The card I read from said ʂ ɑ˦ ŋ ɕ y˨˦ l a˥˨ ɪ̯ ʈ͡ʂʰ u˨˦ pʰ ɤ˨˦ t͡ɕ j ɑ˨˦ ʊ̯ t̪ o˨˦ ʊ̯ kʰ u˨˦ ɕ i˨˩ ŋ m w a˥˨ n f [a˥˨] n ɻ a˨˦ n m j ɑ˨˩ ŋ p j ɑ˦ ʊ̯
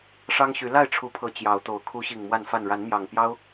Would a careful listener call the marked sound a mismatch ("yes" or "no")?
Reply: no